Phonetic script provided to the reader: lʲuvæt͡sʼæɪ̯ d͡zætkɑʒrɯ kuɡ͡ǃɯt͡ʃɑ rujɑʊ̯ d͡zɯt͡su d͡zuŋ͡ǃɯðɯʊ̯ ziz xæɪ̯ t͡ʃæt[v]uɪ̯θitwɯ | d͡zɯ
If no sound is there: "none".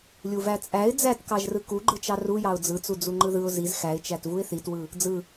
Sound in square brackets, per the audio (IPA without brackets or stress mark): v